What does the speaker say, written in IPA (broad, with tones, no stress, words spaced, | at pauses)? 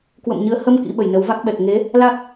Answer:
kwə̰˧˨mɲɨ˨˦ə̯ hə˧m kḭ˧˥ɓə˨˩jnə˨˦w va˦˥k̚ɓɛ˨˩k̚ ŋe˨˦ | la˦˥k̚